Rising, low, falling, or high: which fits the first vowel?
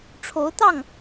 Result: rising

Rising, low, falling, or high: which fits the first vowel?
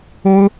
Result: high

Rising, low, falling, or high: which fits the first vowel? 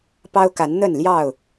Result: high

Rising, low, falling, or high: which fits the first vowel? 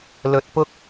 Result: low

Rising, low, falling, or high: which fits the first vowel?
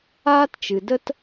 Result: high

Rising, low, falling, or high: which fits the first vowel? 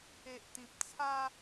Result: low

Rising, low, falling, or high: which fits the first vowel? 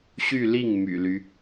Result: falling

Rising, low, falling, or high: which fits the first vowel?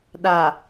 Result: low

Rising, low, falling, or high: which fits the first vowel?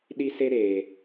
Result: high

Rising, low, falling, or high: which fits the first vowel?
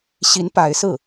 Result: rising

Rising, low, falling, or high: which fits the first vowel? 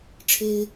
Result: high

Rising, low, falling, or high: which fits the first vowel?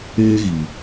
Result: high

